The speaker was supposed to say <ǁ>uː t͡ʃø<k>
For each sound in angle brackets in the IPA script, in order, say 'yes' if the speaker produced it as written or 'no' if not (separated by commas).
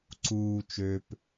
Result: no, no